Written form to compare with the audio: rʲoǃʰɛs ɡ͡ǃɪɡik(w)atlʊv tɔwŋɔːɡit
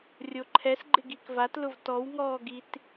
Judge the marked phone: incorrect: v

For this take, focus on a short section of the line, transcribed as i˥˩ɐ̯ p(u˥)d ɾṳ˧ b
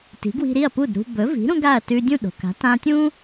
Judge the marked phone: incorrect: u˥˩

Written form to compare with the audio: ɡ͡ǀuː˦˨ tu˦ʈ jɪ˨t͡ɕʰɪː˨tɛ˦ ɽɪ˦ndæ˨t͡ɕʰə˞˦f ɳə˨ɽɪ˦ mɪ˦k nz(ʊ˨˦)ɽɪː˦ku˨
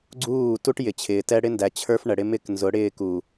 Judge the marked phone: correct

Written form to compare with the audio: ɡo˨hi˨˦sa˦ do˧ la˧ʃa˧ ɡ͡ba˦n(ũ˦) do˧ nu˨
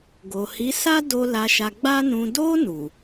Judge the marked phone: incorrect: ũ˧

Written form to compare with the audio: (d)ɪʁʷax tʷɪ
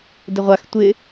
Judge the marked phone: correct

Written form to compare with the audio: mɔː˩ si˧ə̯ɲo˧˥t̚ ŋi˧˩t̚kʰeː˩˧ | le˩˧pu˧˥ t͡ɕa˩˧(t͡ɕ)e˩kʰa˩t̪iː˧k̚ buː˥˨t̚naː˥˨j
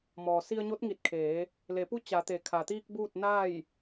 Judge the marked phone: incorrect: t̪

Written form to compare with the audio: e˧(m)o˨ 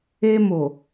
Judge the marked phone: correct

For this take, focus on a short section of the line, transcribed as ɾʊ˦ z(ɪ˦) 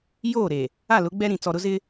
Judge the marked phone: correct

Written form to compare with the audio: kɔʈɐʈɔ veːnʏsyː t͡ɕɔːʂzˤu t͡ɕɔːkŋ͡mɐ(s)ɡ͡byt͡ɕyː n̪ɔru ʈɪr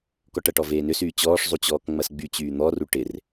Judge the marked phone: correct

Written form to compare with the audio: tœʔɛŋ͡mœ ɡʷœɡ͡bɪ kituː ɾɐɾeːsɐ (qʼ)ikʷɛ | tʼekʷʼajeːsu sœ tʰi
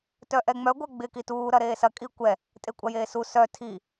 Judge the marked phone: incorrect: kʼ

